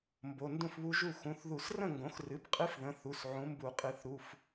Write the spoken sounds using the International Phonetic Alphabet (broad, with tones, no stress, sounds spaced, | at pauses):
m b o˩˧˩ n d ũ˥˩ f β u˦˥ ʒ u˥˩ x ũ˩˧˩ θ ð u˨˩˦ s r ə̃˥˩ ŋ ɡ õ˩˥ x r ɨ˩˥ b qʼ ɨ˦˥ f ð ə̃˩˧˩ θ u˩˧˩ s ʕ ũ˩˥ m b u˨˩˦ qʼ ɨ˩˧˩ θ ɾ u˩˧˩ f